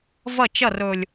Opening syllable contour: falling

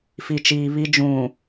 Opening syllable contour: low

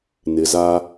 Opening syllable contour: low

